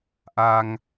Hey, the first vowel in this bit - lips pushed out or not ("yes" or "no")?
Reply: no